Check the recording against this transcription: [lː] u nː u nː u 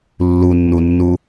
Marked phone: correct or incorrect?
correct